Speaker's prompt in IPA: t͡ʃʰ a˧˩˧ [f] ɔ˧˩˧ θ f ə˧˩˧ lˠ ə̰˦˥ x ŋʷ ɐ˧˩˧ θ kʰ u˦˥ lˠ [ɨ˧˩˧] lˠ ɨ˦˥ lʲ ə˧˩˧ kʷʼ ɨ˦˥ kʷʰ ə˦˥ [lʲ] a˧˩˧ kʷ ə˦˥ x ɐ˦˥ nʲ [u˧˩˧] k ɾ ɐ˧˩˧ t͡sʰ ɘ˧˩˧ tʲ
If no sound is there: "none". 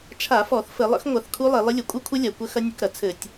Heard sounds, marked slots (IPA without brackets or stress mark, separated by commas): f, e˧˩˧, lʲ, u˧˩˧